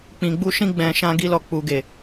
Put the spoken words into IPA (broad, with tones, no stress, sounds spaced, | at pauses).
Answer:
k͡p ĩ˨ ɡ͡b u˧ ʃ ĩ˧ ɡ͡b ɛ̃˨ ʃ ã˧ ɡ i˧ l ɔ˨ k͡p u˨ ɡ e˨